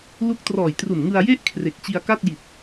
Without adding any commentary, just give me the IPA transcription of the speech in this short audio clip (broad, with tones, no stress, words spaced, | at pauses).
lu˦˥k̚trɔː˨˩jtru˨˩nŋɯ˧a̯ je˥˩ʔ kʰre˨˩k̚t͡ɕi˧a̯ka˥˩t̚ ji˨˩t̚